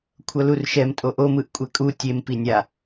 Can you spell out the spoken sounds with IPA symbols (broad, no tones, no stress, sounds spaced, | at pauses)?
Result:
kʷʰ ʌ l u r ʃ ɛ m tʼ o ʔ o m ɯ ʔ kʷʼ ɛ kʼ u tʲ e m p i nʲ a